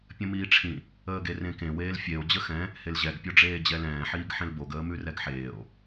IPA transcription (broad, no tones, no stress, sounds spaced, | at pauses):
pʲ ə̃ m iː ʈ͡ʂʰ ĩ | əː ɡ e r ẽ k ẽ w eː l fʲ e o̯ d͡ʑ ə x ɛ̃ | h e l ʑ ɛ ɡ pʲ o ɖ͡ʐ eː d͡ʑ ɛ l ɛ̃ː ħ iː ɡ ħ ẽ l b o ɡ əː m ʉ r ɛ ɡ ħ eː o̯